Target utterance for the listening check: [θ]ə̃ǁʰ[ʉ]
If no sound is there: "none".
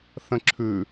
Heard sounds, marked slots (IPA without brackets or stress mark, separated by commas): θ, ʉ